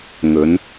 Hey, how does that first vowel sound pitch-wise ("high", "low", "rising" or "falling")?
rising